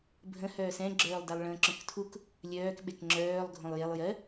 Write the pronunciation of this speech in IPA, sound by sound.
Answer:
bʱ ə̃ h œː s ɛ̃ ɡ͡ǁ œː lˠ d a lˠ ɭ ə̃ː ǁ œ̃ k tʰ u k | lʲ œː k ɓ e k ŋ͡ǁ œː lˠ ɡʱ õ lˠ j e lˠ j ɜ

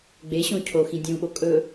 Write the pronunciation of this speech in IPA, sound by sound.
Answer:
ɡ͡b e ɕ õ cʰ o x ĩ dʲ ũ ɓ o kʼ ɵ

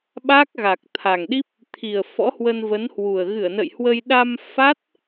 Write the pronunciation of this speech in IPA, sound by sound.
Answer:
ɓ a˦˥ k̚ ɣ a˨˩ k̚ t̪ʰ a˨˩ ŋ ɗ i˦˥ p̚ | t̪ʰ i˨˩ ə̯ f ɔ̰˧˥ h w ə˧ n v ə˨˦ n h w u˨˩ ə̯ ɣ ɨ˧˩ ə̯ n ə̰˧˨ j h w ə˧ j ɗ a˧ m f a˦˥ t̚

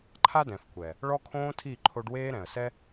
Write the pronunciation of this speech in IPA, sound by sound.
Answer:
ǃʰ a˦ d ɛ̃˨ f kʷ ɛ˨ | ɭ ɔ˦ kʰ õː˦ tʰ i˦˨ ǃʰ o˧ ɖ w eː˦ ɾ ɛ̃˨ ə̯ s ɛ˦

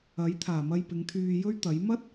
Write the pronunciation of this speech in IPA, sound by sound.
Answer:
ɐ˨˥ j t̪ʰ aː˨˩ m ɐ˧ j p ɪ˨˧ ŋ t̪ʰ yː˧ j ɵ˥ ɥ t̪ ɐ˨˥ j m ɐ˥ t̚

